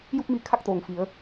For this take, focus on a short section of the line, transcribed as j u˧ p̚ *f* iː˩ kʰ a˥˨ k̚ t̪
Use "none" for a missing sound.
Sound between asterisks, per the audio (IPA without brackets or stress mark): m